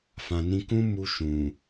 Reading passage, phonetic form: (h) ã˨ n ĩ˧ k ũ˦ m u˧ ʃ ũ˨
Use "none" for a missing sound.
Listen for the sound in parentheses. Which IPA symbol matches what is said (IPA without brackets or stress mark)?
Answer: f